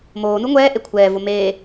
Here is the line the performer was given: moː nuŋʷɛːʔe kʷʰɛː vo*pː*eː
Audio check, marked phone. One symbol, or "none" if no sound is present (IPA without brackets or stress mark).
m